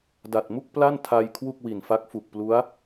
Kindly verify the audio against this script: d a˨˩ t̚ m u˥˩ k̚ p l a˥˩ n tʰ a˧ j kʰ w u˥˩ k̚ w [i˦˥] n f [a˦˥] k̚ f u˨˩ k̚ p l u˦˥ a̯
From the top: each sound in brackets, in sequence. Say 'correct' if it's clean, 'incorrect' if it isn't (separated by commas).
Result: incorrect, correct